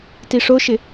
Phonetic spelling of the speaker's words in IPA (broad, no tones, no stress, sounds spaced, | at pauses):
t i ʂ o ʃ ɪ